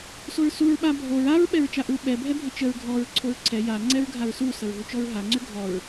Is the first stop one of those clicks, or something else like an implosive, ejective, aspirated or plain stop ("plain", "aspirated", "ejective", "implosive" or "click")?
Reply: implosive